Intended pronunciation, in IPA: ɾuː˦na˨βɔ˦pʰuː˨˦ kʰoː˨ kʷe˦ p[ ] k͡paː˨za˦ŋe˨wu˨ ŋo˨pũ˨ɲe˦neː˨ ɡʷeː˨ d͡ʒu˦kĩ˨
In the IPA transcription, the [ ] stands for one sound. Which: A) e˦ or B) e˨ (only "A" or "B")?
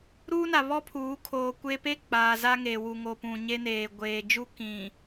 A